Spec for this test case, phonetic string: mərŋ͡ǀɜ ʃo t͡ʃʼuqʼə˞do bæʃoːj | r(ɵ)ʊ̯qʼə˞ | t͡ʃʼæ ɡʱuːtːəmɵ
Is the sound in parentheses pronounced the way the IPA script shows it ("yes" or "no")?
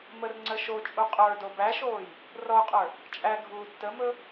no